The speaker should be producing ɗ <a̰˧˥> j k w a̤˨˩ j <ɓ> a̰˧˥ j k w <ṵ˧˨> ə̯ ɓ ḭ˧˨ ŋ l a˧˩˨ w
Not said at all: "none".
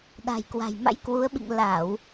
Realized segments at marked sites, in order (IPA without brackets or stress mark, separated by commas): a̤˨˩, m, u˨˦